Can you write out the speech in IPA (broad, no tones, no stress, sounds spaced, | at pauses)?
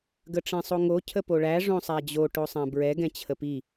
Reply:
ɡ ə ʈ͡ʂ ɛ̃ sˤ o ŋ o cʰ ə p o ɭ æ ʐ õ sˤ æ d͡ʑ o ʈ o sˤ æ̃ b ɹ ɛ ɡ ɛ̃ t͡ɕʰ ə p i